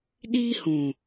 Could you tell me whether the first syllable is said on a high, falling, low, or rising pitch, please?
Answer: high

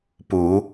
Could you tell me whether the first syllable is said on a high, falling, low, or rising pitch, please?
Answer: rising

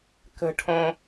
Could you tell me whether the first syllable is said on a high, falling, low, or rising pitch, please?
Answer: high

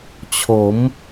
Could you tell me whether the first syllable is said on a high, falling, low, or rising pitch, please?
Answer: rising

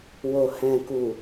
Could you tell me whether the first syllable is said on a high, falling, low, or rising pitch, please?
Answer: low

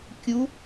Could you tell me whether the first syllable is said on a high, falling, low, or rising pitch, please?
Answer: rising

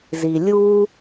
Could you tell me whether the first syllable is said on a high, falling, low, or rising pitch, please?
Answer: low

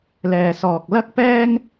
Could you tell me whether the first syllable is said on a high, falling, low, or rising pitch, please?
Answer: low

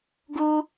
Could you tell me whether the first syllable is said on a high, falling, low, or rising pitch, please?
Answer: high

